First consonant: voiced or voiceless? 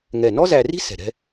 voiced